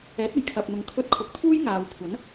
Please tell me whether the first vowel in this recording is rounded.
no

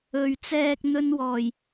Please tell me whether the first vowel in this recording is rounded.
yes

